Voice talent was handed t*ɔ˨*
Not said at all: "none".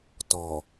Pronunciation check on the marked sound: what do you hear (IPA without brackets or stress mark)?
ɔ˨